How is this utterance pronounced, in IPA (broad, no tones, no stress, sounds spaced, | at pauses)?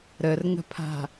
ɾ ə r ŋ ə̤ pʰ a̤